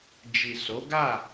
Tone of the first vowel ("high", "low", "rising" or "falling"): low